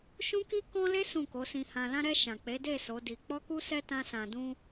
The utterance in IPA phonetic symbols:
ʃ ũ˦ k i˦ k ɔ̃˦ l e˦ s ũ˦˨ k o˨˦ s ĩ˧ h ã˨ l ã˧ ɾ ɛ˧ ʃ ã˨ k͡p e˨˦ d e˦˨ s o˨˦ d i˧ k͡p ɔ˦ k u˦ s ɛ˦ t ã˦ s ã˧ d ũ˧

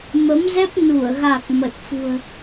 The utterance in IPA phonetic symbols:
m ə˨˦ m z ɛ˦˥ p̚ n u˧˩ ə̯ ɣ a˨˩ k̚ m ə˨˩ t̚ f ṳ˨˩ ə̯

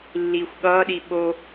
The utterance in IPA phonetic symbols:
lː iː xʷ ɠ ʌː ɗ i ɓ o

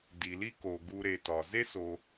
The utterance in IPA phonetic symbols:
d i˩ l i˦ k o˩ ɡ u˨ ɾ e˩ t ɒ˩ z e˥ s o˨

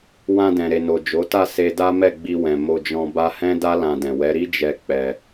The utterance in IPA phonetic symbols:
w ã˧ d ɛ̃˨ ɾ e˨ n o˨ d͡ʒ o˨˦ t a˦˨ s e˧ d a˦ m ɛ˦˨ ɡ͡b i˧ w ɛ̃˨ m o˧ d͡ʒ ɔ̃˧ b a˧ h ɛ̃˦ d a˦ l ã˧ d ɛ̃˨ w ɛ˨˦ ɾ i˦ d͡ʒ ɛ˧ k͡p ɛ˧

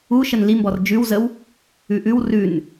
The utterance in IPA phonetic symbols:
u ʃ ə n l i m b ɔ r d͡ʒ ʉ w z ə w | ʉ ʔ ʉ w r ʉ n

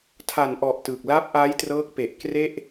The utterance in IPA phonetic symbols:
tʰ a˨˩ n ʔ ɔ˨˩ ʔ t ɯ˨˩ k̚ l a˦˥ p̚ ʔ a˦˥ j t r ɤː˦˥ k̚ p e˨˩ ʔ k r e˥˩ ʔ

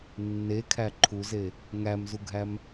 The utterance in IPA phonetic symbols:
nː e kʰ æ ǃʰ u z e | ŋ æ m z u ɡʱ æ m

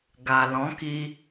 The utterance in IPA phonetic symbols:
ɡ a˨ l ɔ̃˨˦ k i˧

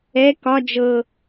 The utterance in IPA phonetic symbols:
ɛ k ɒ d͡ʒ ɤ

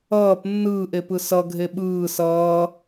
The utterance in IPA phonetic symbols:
ʌː p nː ɯː ʔ e p ɯ s ʌ ɡʱ e ɓ ɯː s ʌː

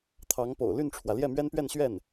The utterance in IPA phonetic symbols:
t̪ʰ ɑ˧˥ ŋ p o̰˨˩ ʊ̯ l y˥˩ n ʈ͡ʂʰ w ä˩ l j ɛ˥˩ m ɥ ɛ˥ n p ɥ ɛ˥˧ n ɕ ɥ ɛ˥˩ n

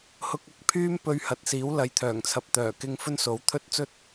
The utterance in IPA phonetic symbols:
h ʊ˧ k̚ ɐ˨ k̚ pʰ yː˥ m p ɵ˧ ɥ h ɐ˨ t̚ s iː˨˥ w l ɐ˨˥ j t̪ʰ œː˨˩ ŋ t͡sʰ ɐ˨ p̚ t̪ œː˨˩ k ɪ˥ ŋ f ɵ˥ n s o˨˥ w t̪ʰ ɵ˥ t̚ t͡s ɵ˥ t̚

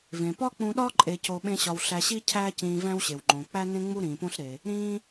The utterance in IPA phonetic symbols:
v ẽ˩ p ɒ˥ k͡p ũ˧ ɗ ɒ˥ ǃʼ e˧ c o˧ ɓ ẽ˥ ɕ ɒ˧ w ɬ æ˧ ɕ i˥ cʰ æː˥ c ĩː˧ v æ̃˥ w ɕ e˩ w ŋ͡ǃ õ˩ k͡p æ˥ n ẽ˥ ŋ͡m u˥ ɾ ĩː˩ p õ˥ ɬ ɾ e˩ | ɾ ĩː˥

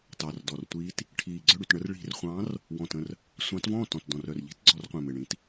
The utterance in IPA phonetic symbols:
t ɑ˨˩ r d ɔ˨˩ r tʷ iː˨˦ t | ʈʰ iː˨˩ ɡ͡ǀ œ˥˩ ɽ y˥˩ t ɳ ə˨˦ r ɭ i̤˧˩˧ r χʷ ɑ̃ː˨˦ r | w ɔ̃˨˩ t ə̃˥˩ r | sʷ ɑ̃˨˦ t v ɔ̃ː˥˩ t ɔ̃˨˩ t d ɔ̃˨˩ r œ˨˩ r ʎ i̤˨˦ t ɡ͡ǀ ɔ˧˩˧ r qʷ ẽ˨˩ m e˨˩ ɳ ĩː˨˦ t

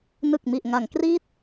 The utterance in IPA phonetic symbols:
n ɯ˨˩ k̚ m i˨˩ ʔ ŋ a˩˦ ŋ k r iː˦˥ t̚

